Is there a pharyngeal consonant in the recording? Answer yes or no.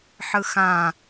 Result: yes